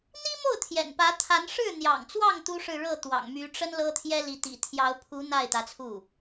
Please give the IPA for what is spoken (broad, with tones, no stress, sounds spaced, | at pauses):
n̪ i˥ m o˥˩ ʊ̯ t̪ʰ j ɛ̰˨˩ n p ä˧˥ t̪ʰ a˧˥ n ʂ ɻ̩˥˩ n̪ j ɑ̰˨˩ ŋ t͡s w ɑ˥˩ ŋ t̪ u˥ ʂ ɻ̩˥˧ ɻ ɤ˥˩ t̪ w ɑ̰˨˩ ŋ m y˧˥ ʈ͡ʂ ə˥ n l ɤ˥ t̪ʰ j ɛ˥ l i˧˥ t̪ ḭ˨˩ t̪ʰ j ɑ˧˥ ʊ̯ pʰ u˧˥ n̪ a˥˩ ɪ̯ t̪ ä˧˥ t͡sʰ u˥˩